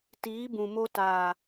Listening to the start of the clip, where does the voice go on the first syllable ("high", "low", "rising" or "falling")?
rising